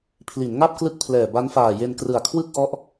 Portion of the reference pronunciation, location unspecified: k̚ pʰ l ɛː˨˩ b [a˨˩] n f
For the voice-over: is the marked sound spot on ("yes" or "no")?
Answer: no